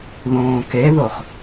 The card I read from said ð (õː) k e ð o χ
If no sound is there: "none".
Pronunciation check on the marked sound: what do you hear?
õː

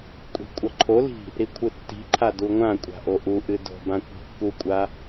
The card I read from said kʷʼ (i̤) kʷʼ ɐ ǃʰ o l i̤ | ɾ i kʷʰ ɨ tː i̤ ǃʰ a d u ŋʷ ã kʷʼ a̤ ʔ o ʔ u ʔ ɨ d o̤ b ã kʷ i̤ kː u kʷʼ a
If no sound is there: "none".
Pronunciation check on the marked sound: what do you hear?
i̤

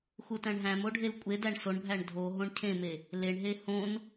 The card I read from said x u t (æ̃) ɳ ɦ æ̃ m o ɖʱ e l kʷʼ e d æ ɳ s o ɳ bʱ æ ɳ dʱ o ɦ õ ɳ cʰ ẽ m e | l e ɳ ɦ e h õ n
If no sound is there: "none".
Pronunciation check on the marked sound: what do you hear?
æ̃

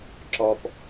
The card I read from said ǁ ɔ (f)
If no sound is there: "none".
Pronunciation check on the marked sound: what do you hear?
p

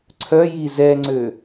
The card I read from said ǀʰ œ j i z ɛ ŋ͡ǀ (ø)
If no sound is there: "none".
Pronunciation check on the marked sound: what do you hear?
ø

